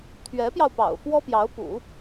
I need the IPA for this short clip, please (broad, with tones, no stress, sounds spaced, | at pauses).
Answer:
t̪ʰ ɥ ɛ˧˥ p j ɑ˧ ʊ̯ p ɑ̰˨˩ ʊ̯ f w ɔ˥ p j ɑ˧˥ ʊ̯ p ṵ˨˩˦